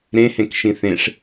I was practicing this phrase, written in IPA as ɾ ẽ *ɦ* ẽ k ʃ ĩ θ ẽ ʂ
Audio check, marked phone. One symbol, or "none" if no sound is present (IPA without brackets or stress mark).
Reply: h